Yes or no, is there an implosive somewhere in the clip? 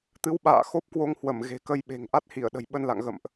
yes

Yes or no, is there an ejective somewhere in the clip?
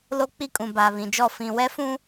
yes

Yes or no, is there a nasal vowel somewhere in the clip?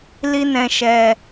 yes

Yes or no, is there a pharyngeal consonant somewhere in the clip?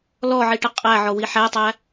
yes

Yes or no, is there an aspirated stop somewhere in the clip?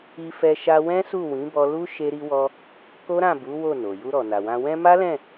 no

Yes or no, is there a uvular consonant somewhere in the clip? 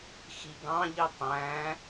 no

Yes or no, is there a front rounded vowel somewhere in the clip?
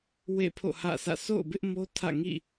no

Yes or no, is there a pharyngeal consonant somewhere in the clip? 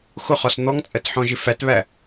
yes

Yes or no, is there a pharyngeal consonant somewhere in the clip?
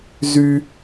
no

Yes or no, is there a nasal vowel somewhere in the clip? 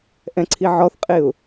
yes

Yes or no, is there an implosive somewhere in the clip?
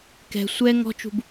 no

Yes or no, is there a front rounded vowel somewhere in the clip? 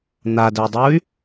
yes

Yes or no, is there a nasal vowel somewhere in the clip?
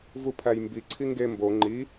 no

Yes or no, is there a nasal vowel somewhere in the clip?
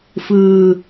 no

